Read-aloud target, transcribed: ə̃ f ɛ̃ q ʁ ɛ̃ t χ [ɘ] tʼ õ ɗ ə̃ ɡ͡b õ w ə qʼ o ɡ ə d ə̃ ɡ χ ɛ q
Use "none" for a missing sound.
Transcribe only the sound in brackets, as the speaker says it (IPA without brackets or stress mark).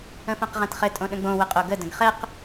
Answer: ɘ